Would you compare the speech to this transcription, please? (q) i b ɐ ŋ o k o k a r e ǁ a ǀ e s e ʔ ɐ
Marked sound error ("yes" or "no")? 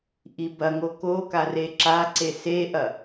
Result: yes